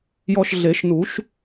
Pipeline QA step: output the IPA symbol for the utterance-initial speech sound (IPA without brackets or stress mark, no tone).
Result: j